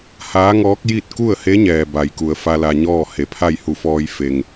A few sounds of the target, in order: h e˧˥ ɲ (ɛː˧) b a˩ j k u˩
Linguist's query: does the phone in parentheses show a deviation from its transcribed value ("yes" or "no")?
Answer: yes